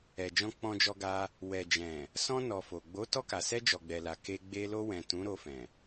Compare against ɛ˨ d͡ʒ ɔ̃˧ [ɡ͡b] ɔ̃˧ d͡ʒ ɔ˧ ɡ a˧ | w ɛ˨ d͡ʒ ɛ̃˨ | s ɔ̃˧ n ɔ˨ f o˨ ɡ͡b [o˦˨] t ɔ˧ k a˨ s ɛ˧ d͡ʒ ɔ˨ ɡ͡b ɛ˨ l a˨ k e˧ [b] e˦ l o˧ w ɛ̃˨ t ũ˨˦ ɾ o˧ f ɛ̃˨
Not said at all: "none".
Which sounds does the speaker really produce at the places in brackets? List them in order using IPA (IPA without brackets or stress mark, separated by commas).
k͡p, o˨˦, ɡ͡b